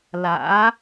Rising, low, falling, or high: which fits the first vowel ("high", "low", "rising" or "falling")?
rising